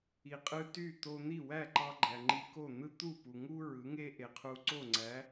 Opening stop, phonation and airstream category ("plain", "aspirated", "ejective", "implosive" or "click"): ejective